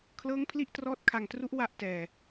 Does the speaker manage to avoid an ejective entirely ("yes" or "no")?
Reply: yes